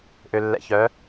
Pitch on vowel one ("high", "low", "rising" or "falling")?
low